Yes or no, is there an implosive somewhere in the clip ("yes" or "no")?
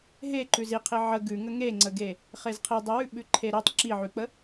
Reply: yes